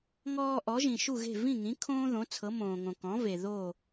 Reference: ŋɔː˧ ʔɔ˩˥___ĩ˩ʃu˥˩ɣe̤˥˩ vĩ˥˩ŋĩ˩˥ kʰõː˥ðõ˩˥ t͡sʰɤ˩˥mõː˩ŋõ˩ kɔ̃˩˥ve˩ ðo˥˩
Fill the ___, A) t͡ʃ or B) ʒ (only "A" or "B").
B